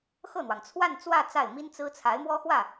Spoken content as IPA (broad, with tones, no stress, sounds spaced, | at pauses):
x ɤ˥˩ n̪ w ɑ˩ ŋ t͡sʰ w a˥˧ n t͡s w ä˥˧ t͡s a˥˩ ɪ̯ m i˥ n t͡s ɹ̩˥ t͡sʰ a˧˥ ɪ̯ m w ɔ˥ x w ä˥˩